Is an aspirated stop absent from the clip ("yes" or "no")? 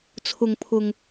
no